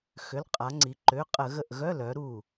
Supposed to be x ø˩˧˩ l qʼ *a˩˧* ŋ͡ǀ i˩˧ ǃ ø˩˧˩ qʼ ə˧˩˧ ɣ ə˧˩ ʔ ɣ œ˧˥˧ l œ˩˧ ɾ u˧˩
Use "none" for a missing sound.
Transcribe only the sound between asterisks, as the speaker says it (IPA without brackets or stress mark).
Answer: a˩˧